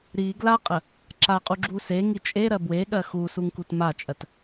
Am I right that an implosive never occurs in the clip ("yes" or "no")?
no